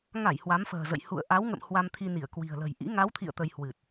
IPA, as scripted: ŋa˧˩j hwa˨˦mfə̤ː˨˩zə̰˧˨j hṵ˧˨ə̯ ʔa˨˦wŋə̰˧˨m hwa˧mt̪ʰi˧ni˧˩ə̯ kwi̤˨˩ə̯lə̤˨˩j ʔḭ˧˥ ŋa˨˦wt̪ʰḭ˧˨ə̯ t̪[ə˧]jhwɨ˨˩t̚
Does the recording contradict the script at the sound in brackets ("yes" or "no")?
no